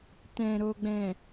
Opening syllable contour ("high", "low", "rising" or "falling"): low